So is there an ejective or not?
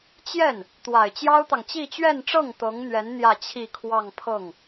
no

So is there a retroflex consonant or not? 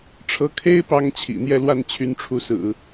yes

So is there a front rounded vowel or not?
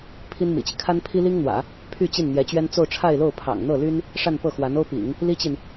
yes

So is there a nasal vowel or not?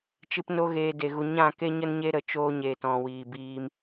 yes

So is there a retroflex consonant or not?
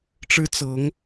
yes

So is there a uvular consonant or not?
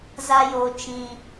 no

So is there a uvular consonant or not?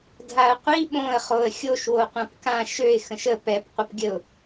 yes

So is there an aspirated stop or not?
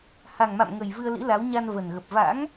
no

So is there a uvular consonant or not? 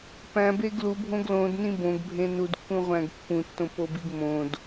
yes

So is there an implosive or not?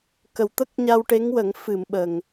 yes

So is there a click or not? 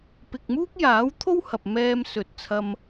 no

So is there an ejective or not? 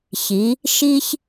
no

